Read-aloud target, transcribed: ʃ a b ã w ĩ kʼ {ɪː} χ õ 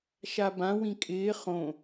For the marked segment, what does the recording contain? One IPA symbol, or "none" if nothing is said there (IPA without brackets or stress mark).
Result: ɪː